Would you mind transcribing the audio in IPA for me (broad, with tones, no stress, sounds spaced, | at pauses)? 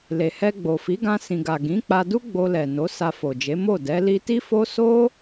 l e˨ h ɛ˧ ɡ͡b o˨ f i˨˦ ɡ ã˧ s ĩ˨ ɡ a˨ ɡ ĩ˨˦ k͡p a˧ d u˦ ɡ͡b o˧ l ɛ˨ n o˨˦ s a˧ f o˨ d͡ʒ e˨˦ m o˦˨ d ɛ˨˦ l i˧ t i˦ f o˦ s o˦